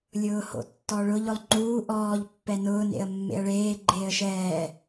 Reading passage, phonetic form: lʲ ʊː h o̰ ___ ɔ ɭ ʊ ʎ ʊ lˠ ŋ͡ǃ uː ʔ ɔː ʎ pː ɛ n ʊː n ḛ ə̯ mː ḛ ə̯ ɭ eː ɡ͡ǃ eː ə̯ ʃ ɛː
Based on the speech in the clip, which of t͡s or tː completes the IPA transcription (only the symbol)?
tː